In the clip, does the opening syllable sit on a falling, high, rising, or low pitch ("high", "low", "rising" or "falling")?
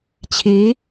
rising